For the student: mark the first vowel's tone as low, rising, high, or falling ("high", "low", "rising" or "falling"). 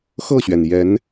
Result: falling